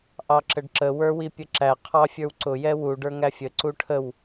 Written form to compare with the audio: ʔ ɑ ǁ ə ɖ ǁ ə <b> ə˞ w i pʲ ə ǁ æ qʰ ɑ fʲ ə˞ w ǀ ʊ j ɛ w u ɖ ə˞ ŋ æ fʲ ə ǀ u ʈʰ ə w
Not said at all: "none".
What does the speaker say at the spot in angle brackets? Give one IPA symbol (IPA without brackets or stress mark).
w